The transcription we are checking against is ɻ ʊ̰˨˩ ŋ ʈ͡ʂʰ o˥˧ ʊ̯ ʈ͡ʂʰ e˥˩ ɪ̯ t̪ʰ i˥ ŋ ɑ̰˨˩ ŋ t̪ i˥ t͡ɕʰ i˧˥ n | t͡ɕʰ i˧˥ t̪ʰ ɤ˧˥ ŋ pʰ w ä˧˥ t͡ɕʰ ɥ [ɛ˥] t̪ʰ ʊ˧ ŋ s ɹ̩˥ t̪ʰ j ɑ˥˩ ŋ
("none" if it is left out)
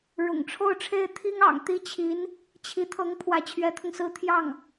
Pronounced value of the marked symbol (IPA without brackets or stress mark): ɛ˧˥